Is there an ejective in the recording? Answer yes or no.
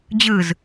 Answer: no